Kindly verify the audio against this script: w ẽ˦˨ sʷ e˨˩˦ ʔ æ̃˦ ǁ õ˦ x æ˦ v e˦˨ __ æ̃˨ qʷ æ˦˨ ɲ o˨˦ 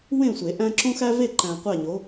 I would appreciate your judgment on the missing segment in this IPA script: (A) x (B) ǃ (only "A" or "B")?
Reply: B